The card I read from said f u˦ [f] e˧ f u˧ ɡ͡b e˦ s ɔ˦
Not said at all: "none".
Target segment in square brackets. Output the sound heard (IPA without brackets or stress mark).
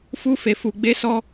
f